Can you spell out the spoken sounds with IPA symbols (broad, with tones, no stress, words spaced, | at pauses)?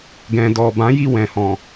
ɡɛ̃˨dɔ˨ bã˨˦ji˦˨wɛ̃˨hɔ̃˨